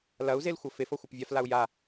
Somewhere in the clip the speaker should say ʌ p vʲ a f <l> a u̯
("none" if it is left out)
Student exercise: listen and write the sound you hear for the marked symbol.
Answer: l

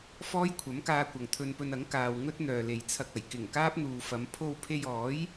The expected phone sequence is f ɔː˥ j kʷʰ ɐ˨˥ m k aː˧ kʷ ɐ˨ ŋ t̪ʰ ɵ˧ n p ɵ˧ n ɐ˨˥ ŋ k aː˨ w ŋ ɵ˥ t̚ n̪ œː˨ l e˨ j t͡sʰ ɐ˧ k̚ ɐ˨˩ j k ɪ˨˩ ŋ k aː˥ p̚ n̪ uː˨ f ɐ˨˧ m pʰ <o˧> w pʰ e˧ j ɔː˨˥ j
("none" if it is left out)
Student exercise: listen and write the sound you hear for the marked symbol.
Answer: o˧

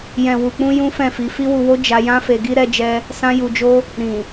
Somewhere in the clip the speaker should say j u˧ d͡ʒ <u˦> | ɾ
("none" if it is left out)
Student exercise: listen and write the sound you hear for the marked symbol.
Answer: o˦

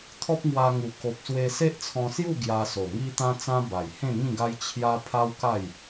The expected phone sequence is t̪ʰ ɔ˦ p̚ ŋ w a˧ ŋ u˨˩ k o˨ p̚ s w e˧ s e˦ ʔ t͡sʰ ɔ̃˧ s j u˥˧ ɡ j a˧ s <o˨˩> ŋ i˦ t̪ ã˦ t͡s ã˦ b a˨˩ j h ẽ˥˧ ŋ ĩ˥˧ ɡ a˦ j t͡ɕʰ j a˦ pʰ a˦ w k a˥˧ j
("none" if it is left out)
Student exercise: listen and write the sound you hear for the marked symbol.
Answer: o˨˩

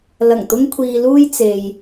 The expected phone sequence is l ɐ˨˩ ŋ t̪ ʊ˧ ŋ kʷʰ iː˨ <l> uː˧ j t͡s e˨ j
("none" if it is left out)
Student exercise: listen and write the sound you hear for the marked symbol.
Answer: l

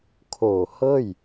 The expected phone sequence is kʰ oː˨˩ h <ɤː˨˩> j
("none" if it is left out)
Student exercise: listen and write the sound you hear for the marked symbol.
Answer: ɤː˥˩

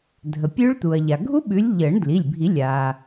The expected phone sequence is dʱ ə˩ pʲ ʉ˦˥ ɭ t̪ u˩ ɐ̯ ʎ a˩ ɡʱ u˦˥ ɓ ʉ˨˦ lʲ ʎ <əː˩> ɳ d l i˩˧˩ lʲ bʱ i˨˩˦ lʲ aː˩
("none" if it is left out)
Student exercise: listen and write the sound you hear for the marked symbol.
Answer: əː˨˩˦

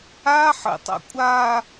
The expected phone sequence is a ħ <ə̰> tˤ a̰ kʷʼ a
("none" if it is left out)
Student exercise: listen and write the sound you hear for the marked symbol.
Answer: ə̰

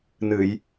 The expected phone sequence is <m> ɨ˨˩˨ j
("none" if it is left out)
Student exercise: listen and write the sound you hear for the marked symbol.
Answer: n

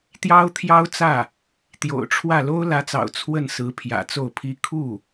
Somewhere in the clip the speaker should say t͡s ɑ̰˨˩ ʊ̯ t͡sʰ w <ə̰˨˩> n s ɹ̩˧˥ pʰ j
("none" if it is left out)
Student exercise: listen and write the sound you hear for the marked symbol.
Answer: ə˥˩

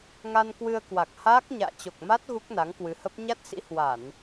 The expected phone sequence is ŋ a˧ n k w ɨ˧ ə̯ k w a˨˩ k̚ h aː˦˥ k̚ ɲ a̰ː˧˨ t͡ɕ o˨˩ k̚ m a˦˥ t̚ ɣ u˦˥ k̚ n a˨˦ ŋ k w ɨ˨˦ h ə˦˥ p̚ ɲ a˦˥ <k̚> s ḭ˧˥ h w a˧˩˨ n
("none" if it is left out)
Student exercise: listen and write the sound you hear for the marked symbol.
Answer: t̚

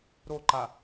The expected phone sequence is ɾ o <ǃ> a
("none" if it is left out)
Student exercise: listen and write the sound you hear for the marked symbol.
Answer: ǃ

